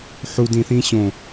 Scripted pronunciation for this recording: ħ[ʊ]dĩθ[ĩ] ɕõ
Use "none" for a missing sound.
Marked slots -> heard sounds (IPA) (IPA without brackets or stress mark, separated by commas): u, ĩ